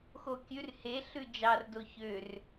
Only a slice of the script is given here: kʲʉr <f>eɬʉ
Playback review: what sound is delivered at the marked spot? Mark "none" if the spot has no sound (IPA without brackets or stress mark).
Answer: h